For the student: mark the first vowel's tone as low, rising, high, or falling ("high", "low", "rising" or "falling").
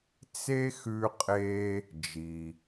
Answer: high